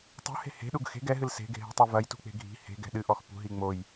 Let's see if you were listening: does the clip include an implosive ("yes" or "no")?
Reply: yes